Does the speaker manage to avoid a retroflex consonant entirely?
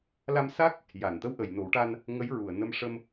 no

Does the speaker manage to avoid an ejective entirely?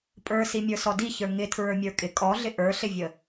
no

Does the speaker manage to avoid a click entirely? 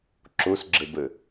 no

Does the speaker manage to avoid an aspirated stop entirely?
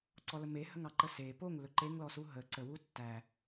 yes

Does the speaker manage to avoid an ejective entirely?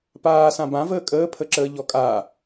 no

